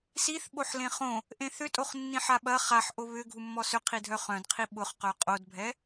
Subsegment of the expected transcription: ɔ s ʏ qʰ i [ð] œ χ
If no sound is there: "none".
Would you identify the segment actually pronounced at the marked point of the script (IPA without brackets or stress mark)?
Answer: dʱ